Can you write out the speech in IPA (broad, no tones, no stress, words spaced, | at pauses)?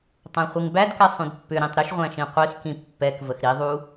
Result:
tˤæ̃χʷiŋbædkɛ sˤũdpːʏɾĩtˤ ɾʏʃʁʷæ̃ ʃĩqʷixkĩ pːɛkvəx ɾiðˤu